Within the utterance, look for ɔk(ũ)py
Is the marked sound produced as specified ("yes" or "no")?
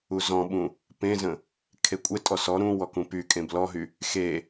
yes